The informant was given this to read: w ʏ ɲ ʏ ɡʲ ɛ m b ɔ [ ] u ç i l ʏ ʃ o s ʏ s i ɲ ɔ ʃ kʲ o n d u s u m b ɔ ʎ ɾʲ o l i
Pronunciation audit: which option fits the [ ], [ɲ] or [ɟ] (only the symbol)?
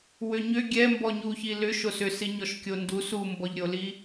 ɲ